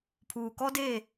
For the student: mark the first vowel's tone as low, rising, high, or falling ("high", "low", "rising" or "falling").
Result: low